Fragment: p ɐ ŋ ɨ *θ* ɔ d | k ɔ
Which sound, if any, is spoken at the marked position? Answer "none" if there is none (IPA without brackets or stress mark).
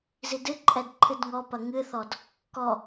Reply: θ